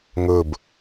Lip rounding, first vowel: rounded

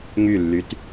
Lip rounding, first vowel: rounded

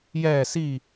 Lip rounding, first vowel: unrounded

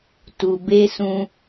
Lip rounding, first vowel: rounded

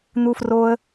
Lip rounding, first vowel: rounded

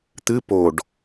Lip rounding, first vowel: unrounded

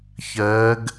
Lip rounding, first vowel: unrounded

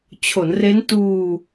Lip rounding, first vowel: rounded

